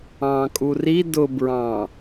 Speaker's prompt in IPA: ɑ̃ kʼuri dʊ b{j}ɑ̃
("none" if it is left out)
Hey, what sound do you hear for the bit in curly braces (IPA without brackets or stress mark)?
ɹ